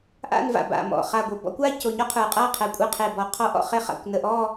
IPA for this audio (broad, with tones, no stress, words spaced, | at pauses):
ʔa̰˥˧nva̰˨˩ba̰˨˩ mɔ̰˨˩χa˨˩ɡʷə˨˩ bɔ̰˥˧kʷa˥˧co˨˩ɲɔ˥˧ qʰə˞˨˩qʼa˥˧qʰɛ˨˩ kʷʼa˥˧qʰe˨˩ bɔ˨˩qʰɔ˥˧ʔɔ̰˥˧χe˥˧ χa̰˨˩kʷnə˨˩ʔɔ˥˧